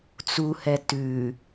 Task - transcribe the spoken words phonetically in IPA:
t͡s u h ɛ t ʉ

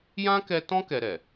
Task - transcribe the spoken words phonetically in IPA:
j ã˦ k ɛ˧ t ɔ̃˦ k ɛ˧ ɾ ɛ˨

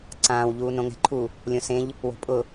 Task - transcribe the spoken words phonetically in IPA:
ǀ ãː w ʎ uː n õ ŋ ɛ̤ ǃʰ u | lʲ õ s ẽ ʎ | w o̤ pʼ ʊ

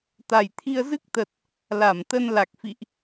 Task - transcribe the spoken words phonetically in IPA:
t̪ a˨˩ j t̪ʰ i˧ ə̯ z ɨ˦˥ k̚ t̪ ə˨˩ t̚ | l a˧˩ m t̪ ə˧ n l a˨˩ k̚ f ḭ˧˨ ʔ

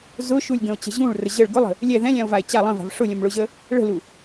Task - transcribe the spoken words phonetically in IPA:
z ʊ ʃ u lʲ ɡ ə̃ o̯ t͡ɕ ə̤ ʑ ũ ɭ r ə ʑ ə ɭ ɡ ʊ lˠ ə̤ | lʲ ɛ ð ɛ̃ lʲ ã o̯ v a e̯ t͡ɕ a lˠ ə̃ v a̤ v ʂ ʊ lʲ ə̃ m ɭ ʊ ʑ ə | ɭ ə̤ l u

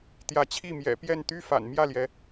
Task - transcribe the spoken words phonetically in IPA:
t̪ j ä˨˦ t͡ɕʰ i˥˨ m j ɛ̰˨˩ p j ɛ˥˨ n t̪ y˦ f a̰˨˩ n m j ä˥˨ l j ɛ˨˦

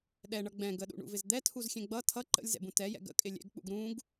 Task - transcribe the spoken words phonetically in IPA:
ɗ ɛ ɳ ʌ ɡ͡b ɛ̃ ɡ ə ɗ ṵ ɳ ṵ v ɪ z d̪ ɛ tʰ u z xʲ ɛ̃ ɡ͡b ʌ tʰ ʌ ǃ ə̰ lʲ z ɛ̰ b ũ t ɛ j ɛ̰ ɡ ə̰ kʼ ɪ lʲ ɛ̰ ɡ k͡p ṵ ɡ ɾ ũ ɡ

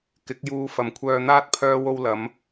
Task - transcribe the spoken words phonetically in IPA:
k ɪ˨˥ k̚ j uː˧ f ɐ˨ m kʷʰ œː˧ n̪ aː˥ t̚ pʰ œː˧ w o˧ w l ɐ˨˧ m

